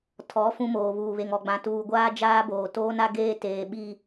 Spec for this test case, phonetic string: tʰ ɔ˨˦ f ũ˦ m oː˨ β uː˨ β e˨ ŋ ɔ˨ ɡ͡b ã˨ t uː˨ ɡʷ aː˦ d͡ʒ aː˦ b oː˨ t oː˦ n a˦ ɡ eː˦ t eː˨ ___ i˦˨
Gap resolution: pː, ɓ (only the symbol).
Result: ɓ